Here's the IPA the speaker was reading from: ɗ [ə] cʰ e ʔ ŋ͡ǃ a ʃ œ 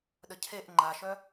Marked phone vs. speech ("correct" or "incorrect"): correct